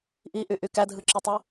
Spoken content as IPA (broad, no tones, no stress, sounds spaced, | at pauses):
ʔ i ʔ y ʔ y k æ dʱ ɯ ǁ ɯ tˤ ɯ